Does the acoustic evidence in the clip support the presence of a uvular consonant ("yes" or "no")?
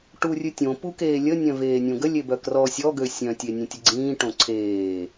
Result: no